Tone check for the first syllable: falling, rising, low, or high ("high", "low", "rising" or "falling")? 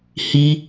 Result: high